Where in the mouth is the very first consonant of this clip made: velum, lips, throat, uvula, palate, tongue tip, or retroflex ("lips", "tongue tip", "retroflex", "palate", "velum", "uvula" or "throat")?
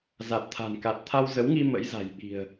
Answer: tongue tip